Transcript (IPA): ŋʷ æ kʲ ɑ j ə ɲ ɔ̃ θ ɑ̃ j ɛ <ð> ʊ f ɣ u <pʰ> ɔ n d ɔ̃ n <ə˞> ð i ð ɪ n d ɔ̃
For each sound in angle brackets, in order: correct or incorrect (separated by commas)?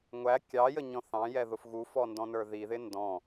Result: correct, incorrect, correct